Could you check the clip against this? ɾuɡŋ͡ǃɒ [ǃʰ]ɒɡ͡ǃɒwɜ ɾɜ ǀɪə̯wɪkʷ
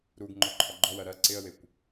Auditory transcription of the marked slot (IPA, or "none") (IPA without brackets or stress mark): ǃʰ